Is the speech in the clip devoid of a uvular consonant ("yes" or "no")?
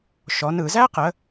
no